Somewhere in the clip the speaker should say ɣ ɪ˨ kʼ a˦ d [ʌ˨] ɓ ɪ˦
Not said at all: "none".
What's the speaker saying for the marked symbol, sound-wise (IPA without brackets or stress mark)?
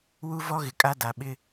a˨